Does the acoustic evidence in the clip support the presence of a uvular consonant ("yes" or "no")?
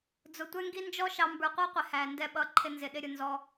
yes